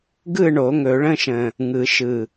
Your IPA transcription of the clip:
ɡ ɯ˥˨ ɳ o˨˩˦ ŋ ɵ˨˩˦ ɭ ə̃˧˥˧ ʃ ə̃˨˩ | ŋ ɯ˨˩˦ ʃ ɯ˨˩

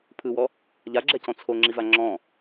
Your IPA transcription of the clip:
pʰ ɯ w ɔ | ʎ a ɡ͡ǁ ɛ c ɔ̃ t͡sʰ o ŋ͡ǁ i v a ŋ͡ǁ ɔ̃

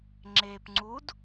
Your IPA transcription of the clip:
ŋ͡ǁ eː p ŋ͡ǀ u d

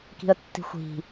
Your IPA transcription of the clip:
k i̤ ə̯ tː i̤ xʷ i̤

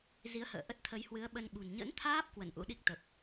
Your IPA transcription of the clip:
z i˨˦ ə̯ h ə̰ː˧˨ ʔ ə˦˥ t̚ t̪ʰ ə˨˦ j h w ɨ˨˦ ə̯ ɓ ə˧ n ɓ ṳ˨˩ n ɲ ə̰˧˥ n t̪ʰ aː˦˥ p̚ k w ə˧˩ n ʔ ṵ˧˥ ɗ i˦˥ k̚ t̪ ə˨˩ p̚

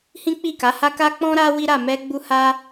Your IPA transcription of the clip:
h ĩ˦ k͡p i˦˨ k a˨˦ h a˦ k a˦ k͡p ɔ̃˦ ɾ a˦ w i˦ ɾ a˦˨ m ɛ˧ ɡ͡b u˦ h a˦

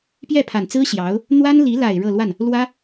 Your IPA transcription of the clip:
p j ɛ˥˩ pʰ a˨˩ n t͡s ɹ̩˥ ɕ j ɑ˧˥ ʊ̯ | n̪ w a˥ n l i˧˥ l a˨˩ ɪ̯ ɻ ɤ˥˧ l w a˥˩ n | l w ä˥

